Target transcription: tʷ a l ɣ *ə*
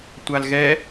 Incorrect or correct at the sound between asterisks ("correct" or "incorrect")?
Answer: incorrect